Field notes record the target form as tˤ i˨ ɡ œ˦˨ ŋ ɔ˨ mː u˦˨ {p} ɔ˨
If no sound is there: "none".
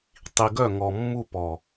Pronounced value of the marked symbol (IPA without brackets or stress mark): p